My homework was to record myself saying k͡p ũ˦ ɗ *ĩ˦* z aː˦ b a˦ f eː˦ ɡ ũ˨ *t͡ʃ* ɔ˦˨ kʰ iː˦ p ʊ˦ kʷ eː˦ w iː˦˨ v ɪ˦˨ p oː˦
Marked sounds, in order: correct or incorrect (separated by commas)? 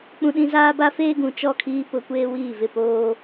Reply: correct, correct